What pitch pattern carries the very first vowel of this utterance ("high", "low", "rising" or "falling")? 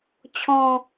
falling